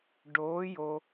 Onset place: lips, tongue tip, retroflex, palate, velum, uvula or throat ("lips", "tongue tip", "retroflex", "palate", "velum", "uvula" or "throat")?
retroflex